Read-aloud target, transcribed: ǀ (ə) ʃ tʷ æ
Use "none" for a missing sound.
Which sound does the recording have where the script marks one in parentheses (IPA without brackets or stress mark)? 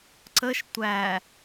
ə